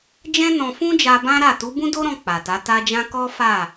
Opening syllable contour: high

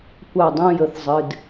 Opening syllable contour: falling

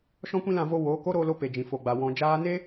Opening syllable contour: high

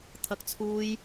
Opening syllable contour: high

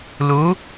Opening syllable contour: rising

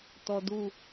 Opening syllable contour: low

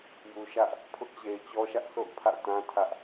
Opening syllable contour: low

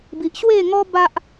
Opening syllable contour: low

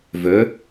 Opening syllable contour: rising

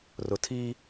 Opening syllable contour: low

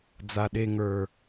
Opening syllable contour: low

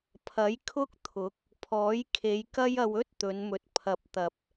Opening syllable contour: rising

